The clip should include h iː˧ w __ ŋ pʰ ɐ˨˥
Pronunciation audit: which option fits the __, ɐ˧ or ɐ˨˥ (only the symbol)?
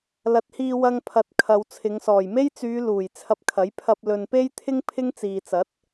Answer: ɐ˧